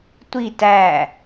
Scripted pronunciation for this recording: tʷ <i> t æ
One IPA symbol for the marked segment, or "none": i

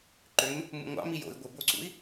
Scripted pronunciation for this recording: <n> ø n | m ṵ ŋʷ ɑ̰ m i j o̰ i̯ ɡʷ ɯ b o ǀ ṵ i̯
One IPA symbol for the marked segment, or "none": ǃ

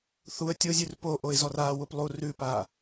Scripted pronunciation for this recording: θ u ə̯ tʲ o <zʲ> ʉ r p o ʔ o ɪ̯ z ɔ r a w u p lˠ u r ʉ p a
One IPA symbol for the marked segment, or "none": zʲ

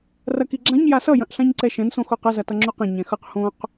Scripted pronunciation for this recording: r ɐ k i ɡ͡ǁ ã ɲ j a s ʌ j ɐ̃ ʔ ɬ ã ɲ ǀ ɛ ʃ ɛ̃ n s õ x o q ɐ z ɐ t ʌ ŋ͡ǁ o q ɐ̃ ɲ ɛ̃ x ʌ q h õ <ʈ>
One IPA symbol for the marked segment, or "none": q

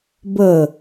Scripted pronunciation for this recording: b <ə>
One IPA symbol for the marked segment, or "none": ə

